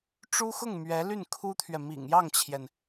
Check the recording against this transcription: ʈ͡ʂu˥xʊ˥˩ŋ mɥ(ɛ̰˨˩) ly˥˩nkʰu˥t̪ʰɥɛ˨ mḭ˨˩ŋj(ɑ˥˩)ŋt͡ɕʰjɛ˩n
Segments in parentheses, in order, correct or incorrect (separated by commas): incorrect, correct